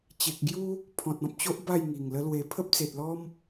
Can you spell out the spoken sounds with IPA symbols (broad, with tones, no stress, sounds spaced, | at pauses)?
t͡ɕ e˨ k̚ ɡ j u˦ | pʰ ɔ̃˨ t̚ ɔ̃˨ p̚ t͡ɕ o˦ ʔ b a˥˧ j ŋ i˨˩ ŋ l ə˦ l w e˧ pʰ ə˦ p̚ t͡s e˨ t̚ l ɔ˦ m